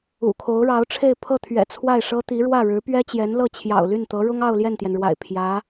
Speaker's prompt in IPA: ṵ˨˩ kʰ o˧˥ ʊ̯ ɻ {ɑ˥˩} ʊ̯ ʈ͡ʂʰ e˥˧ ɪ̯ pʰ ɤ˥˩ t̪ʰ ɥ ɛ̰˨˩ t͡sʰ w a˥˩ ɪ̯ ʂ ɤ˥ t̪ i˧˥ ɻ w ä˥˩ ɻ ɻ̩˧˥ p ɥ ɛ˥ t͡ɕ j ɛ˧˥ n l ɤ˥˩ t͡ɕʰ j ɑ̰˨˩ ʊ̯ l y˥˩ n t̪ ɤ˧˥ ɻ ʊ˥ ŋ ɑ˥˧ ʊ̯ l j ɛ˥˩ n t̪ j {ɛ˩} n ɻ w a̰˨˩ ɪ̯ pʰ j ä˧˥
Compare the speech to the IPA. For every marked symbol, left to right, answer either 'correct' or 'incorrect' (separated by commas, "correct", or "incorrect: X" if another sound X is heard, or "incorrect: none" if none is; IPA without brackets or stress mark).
incorrect: ɑ˧˥, correct